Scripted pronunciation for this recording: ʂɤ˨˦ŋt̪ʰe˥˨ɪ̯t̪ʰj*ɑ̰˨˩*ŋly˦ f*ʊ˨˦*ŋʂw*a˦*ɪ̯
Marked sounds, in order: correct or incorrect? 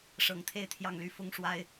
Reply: incorrect: ɑ˥˨, incorrect: ʊ˦, correct

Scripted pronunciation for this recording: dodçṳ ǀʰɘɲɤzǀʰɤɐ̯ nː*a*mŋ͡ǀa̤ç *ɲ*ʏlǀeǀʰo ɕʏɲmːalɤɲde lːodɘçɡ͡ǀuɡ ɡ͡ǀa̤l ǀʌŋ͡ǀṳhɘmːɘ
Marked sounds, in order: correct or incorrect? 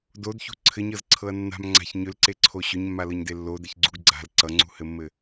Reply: incorrect: a̤, correct

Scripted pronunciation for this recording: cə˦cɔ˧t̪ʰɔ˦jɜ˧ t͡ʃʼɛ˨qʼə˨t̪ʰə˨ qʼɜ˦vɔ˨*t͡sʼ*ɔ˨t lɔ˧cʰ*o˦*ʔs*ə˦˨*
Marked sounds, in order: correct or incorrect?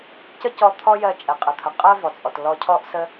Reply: correct, incorrect: ɔ˦, incorrect: ə˦

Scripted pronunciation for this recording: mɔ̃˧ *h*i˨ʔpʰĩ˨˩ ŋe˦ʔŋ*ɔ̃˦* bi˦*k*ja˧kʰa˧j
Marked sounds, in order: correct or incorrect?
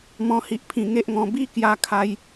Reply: correct, incorrect: ɔ̃˧, correct

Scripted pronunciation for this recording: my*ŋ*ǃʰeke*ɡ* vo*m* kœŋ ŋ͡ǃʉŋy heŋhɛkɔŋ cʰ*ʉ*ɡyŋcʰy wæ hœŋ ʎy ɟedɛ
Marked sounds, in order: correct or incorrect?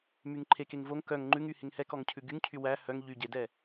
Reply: correct, incorrect: ŋ, incorrect: ŋ, correct

